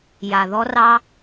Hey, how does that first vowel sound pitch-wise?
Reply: low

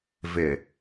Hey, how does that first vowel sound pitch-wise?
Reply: low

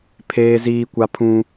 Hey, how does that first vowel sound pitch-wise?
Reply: high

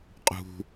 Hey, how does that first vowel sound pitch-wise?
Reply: low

